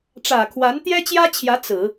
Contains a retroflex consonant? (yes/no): yes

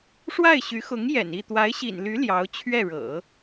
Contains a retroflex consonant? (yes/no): yes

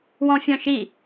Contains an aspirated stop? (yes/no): no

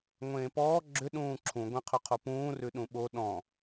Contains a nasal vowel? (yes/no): yes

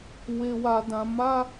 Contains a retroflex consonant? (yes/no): no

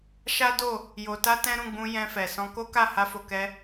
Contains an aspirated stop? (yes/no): no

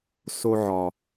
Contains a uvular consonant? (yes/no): no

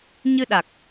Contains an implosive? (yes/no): yes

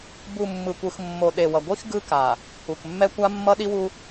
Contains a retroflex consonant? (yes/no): no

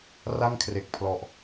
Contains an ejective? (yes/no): no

